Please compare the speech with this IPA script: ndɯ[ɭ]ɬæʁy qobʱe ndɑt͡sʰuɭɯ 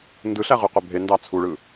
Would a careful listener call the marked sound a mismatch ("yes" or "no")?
yes